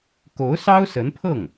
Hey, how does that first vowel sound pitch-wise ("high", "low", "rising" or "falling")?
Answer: rising